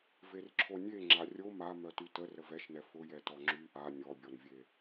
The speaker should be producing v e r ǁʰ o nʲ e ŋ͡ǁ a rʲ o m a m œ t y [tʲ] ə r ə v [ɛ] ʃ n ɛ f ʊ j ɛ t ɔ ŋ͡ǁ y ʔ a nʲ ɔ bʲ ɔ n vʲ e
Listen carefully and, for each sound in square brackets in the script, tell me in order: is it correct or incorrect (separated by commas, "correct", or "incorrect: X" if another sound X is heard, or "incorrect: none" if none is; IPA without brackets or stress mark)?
incorrect: t, correct